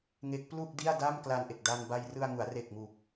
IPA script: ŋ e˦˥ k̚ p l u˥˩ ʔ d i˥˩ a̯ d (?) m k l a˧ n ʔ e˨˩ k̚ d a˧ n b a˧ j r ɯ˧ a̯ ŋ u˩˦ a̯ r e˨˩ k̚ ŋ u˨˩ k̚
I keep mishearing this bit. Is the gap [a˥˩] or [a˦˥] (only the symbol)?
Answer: a˥˩